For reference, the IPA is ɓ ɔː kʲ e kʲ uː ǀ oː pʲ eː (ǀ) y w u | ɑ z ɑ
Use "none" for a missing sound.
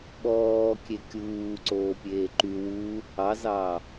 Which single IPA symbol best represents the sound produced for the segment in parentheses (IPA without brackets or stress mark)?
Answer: ǃ